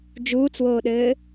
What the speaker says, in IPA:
d͡ʒ uː t͡s w oː ɗ ɘː

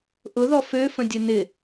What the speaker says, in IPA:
ʔ ʊ ð ɔ f ø f ə̃ dʲ ə n ɪ

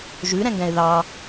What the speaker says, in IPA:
ʒ ʉ ɾ ɛ̃ ŋ ɡ ɛ̃ ɪ̯ ð ɑ

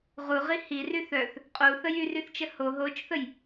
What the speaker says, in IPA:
ʁ u ʁ i h i r y θ œ θ | qʼ u θ ə j y r y θ t͡ʃ ə h o ɦ o t͡ʃ θ ə j

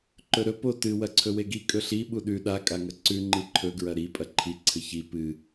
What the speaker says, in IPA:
ǃ ɵ ɾ ɵ p o t ɨ w ɐ ǀʰ ɵ w e ɡ i kʼ ɵ ɬ i ɓ u ɗ ʉ ɗ a kʼ a ŋ ɐ ǀ ʉ ŋ͡ǃ i ǃʰ ɵ ɡ ɹ ɐ ɾ i pʼ ɐ ǃʰ i ǀʰ ɨ ç i p ɨ

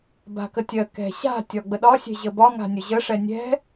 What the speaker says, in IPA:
b a̤ k ə tʲ ɜ k ɛ̤ ɕ a̤ tʲ ɒ ɡ͡b ə ɗ ɒ sʲ ɛ̤ ʑ ə b ɒ ŋ a̤ nʲ ə ʑ ə ʂ ɛ nʲ ɛ̤

